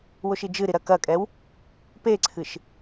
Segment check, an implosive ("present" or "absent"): absent